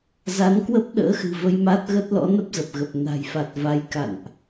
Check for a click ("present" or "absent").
absent